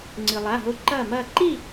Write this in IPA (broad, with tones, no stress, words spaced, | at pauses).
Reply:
ŋ͡ǀɨ˩lˠa˩˧˩ɦo˧˩ ǃɐː˧˩mɐː˧˩ǃi˥˨